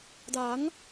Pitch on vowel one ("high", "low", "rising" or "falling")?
rising